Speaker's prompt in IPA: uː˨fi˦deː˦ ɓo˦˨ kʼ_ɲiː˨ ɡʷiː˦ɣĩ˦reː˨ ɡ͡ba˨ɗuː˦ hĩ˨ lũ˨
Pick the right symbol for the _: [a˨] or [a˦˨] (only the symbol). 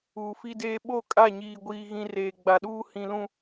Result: a˦˨